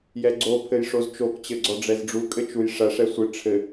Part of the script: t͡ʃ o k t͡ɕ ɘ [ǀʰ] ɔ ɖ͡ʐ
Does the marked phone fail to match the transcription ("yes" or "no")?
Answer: yes